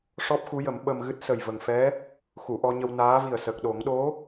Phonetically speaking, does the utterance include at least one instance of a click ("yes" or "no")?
no